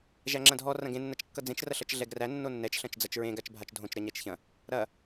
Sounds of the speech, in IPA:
ʒæŋ͡ǁɐ̃dʱɔ rɐ̃ɡẽ nːɐt͡ʃkːʌd͡zẽt͡ʃ rɐɬʌt͡ʃɮɛɡræ nːonːɛt͡ʃ ɬɐ̃t͡ʃd͡zɐt͡ʃɹẽ ɡat͡ʃbʱat͡ʃdʱõt͡ʃ ɾɐɲæt͡ʃçɐ̃ | ɾɐ

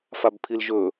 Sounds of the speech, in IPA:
fabpʰilʒɵ

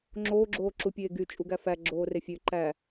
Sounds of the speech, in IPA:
ŋ͡ǁoːɡ͡ǁoːǁupʲeː ɡyt͡ʃʼuɡæ fæɡ͡ǁoːre fʲø ǃæ

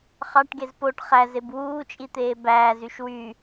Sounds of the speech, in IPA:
χɑʈɡez poʈ χæzeb wuːt͡ʃʼit̪eː bæːzyʃ wy

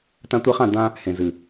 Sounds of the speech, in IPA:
tã˧tʷi˧χã˦˨ d̪ã˧ | hẽ˨zɨ˨

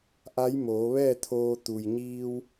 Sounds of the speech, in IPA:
ʔa˧˥jmoː˩˧ʋɛː˥˨t̪ʰoː˧ t̪u˩jɲiː˧w

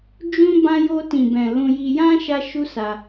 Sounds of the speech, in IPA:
d͡ʒũ˦ bã˦ jo˧tĩ˨bɛ̃˨ lũ˧ ji˧jã˦ ʃa˦ʃu˦sa˧

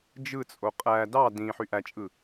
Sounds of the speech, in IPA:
d͡ʒɯt͡sʼo qʼæ dɑ dĩ ħyʔæt͡ʃʼɯ

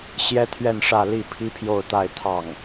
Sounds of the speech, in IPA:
ɕjɛ˥t̪ʰɥɛ˥˧nʂä˥˧li˥˩ pʰi˥pʰjo˥˧ʊ̯t̪a˥˧ɪ̯t̪ʰɑ˥˩ŋ

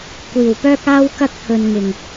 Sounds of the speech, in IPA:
kʷiː˨˩wpœː˥k̚aː˥w kɐ˥k̚pʰɵ˨n ŋɪ˨˩ŋ

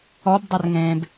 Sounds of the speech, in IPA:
ɔbdˤərŋẽːb

